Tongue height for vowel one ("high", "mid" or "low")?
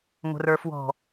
mid